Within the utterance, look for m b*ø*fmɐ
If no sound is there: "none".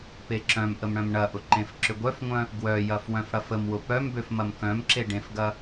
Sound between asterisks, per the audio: ø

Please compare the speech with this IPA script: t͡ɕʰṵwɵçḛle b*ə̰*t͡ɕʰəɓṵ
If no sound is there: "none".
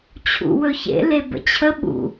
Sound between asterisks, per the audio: ə̰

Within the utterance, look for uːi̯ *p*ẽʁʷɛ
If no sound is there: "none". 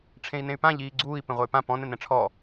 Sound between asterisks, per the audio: p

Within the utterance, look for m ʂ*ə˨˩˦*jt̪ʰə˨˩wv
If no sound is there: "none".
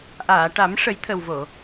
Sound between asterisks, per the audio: ə˨˩˦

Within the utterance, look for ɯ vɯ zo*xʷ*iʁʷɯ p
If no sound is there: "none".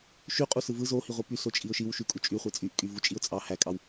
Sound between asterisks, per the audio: h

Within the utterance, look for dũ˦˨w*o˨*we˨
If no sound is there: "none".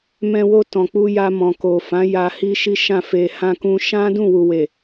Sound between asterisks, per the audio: u˨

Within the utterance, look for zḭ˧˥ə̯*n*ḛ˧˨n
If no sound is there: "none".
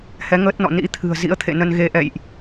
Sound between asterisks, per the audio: t̪ʰ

